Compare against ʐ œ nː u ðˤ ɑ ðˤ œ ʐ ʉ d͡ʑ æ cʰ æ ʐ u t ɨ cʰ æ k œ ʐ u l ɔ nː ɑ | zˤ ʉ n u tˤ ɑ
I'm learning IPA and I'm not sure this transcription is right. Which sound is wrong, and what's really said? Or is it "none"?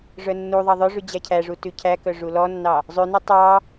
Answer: ɨ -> ʉ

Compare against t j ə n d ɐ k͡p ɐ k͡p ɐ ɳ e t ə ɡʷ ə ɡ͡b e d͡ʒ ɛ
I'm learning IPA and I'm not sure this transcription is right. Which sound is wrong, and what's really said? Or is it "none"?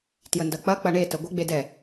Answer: d͡ʒ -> d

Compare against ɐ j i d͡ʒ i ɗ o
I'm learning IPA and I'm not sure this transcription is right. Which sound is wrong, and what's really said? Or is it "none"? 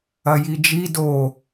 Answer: ɗ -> d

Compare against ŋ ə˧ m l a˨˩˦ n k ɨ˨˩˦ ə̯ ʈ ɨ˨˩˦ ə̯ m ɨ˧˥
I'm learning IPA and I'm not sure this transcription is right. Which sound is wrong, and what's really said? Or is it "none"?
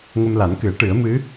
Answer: none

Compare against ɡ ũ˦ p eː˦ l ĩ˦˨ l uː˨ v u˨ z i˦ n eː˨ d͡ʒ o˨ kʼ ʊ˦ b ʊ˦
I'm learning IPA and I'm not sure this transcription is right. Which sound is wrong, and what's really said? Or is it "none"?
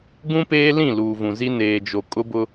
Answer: u˨ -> ũ˨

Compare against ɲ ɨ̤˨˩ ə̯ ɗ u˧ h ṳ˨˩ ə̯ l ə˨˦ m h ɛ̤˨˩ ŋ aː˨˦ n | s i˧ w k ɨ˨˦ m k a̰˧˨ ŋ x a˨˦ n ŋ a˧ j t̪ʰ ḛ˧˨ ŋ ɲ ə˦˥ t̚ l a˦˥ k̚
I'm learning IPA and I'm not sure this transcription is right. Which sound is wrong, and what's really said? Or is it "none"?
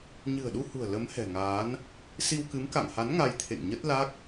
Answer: x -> h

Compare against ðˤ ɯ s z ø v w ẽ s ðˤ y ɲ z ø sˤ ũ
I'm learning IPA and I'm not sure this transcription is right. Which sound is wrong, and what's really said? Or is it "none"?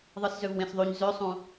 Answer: none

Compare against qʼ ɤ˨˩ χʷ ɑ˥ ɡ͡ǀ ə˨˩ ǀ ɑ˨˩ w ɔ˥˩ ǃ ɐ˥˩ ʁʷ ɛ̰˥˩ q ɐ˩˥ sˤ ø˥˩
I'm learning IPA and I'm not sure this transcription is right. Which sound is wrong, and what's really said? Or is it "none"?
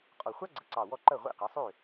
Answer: ɤ˨˩ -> ɔ˨˩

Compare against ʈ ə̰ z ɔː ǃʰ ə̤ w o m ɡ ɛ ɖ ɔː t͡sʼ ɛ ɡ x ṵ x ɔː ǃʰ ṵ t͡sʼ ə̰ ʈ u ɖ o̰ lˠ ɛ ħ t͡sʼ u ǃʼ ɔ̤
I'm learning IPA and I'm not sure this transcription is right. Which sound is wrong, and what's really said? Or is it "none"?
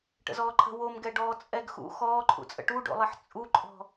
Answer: none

